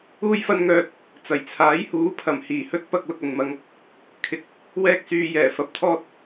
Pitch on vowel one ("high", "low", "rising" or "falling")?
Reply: high